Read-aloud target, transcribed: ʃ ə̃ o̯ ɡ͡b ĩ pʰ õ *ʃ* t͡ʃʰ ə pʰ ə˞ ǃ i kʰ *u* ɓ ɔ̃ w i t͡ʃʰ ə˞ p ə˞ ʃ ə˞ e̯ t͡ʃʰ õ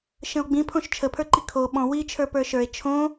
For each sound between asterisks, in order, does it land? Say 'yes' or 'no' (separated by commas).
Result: yes, no